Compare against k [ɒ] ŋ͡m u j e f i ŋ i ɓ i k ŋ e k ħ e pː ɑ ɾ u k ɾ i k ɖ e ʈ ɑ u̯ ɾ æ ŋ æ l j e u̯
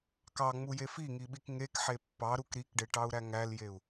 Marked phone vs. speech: incorrect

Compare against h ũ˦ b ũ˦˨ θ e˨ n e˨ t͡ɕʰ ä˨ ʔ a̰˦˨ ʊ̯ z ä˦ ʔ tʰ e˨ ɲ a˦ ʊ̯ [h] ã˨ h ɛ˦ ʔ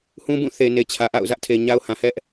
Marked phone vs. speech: correct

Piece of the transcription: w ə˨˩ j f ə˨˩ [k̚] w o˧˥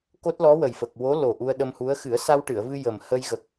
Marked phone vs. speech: correct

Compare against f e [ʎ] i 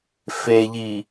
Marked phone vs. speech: correct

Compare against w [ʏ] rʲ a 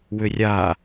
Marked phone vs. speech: correct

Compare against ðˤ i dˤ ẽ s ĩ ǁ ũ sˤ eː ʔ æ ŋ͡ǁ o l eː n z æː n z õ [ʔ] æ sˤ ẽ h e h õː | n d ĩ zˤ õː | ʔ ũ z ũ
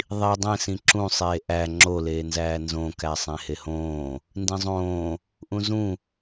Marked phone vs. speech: incorrect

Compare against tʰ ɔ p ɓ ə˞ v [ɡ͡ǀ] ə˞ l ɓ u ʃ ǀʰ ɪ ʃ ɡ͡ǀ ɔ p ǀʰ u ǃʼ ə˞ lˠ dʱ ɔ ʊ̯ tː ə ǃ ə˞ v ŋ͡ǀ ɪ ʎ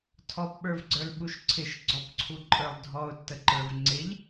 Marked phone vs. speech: correct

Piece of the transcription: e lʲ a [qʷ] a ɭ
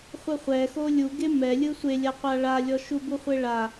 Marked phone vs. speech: correct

